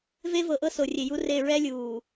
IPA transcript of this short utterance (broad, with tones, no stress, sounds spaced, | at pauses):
v e˦ v ɤ˨ ʔ ɤ˦ s o˨ rʲ e˨ j u˦ r e˦˨ ɹ ɛ˦ lʲ uː˨